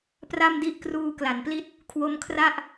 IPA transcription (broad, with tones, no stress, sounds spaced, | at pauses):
p r a˥˩ m d i˥˩ ʔ k r uː˧ k l a˩˦ n p l i˥˩ t̚ | kʰ w o˦˥ m kʰ r a˥˩ ʔ